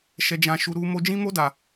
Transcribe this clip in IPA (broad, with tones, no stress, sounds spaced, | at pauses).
ʃ ɛ˦ d͡ʒ ã˦ ʃ u˦ ɾ u˦ m o˦ d͡ʒ ĩ˦ m o˦ d a˧